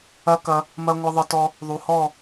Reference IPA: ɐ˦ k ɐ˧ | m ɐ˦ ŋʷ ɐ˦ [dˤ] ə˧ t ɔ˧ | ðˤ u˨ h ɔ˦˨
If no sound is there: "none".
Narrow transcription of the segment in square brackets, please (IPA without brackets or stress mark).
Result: ðˤ